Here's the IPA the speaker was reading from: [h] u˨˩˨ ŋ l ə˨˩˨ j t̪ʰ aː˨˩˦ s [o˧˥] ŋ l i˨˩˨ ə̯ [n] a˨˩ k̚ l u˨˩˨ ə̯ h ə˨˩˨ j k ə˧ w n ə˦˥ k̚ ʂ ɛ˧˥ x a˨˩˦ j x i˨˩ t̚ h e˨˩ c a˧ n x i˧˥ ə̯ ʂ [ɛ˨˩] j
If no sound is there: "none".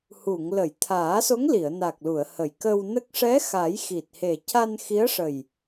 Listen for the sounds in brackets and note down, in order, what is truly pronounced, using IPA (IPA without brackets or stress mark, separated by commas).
h, o˧˥, n, ə˨˩